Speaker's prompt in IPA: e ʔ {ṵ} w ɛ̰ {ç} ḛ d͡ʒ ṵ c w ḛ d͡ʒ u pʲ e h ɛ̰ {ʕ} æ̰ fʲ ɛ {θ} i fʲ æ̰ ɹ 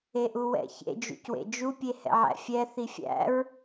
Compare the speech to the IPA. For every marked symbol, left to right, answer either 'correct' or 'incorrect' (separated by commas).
incorrect, correct, correct, correct